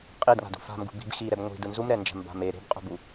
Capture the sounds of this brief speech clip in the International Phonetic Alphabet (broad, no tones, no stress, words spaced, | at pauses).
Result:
qʼidŋa̤d ṳfa̤mɡṳ bi̤bxiɾɛb ŋʷi̤dɯ nzumɾɛnd͡ʒa̤m ba̤me ɾe̤bqʼṳbu